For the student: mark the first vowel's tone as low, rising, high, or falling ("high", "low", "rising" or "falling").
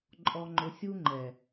low